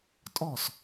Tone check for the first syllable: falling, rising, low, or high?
falling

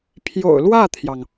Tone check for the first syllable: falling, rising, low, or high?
low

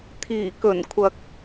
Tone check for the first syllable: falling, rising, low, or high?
low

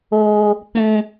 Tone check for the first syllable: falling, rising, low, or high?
high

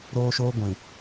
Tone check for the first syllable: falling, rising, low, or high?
high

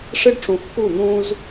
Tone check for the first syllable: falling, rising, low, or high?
high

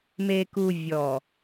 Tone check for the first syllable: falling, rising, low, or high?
low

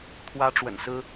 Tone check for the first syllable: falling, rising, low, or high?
high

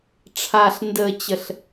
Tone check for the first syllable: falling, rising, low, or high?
low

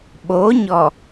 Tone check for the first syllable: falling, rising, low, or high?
rising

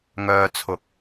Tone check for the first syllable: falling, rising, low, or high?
low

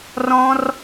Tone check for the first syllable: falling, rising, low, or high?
high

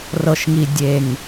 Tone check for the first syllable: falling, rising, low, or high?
low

